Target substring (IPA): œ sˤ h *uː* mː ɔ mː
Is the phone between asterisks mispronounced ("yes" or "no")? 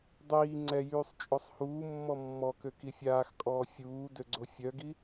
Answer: no